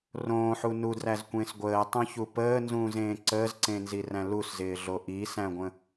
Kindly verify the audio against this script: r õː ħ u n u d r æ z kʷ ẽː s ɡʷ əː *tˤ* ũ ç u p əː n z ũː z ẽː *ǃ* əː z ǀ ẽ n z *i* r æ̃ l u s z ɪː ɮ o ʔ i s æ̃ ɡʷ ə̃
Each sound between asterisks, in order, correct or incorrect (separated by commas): correct, incorrect, correct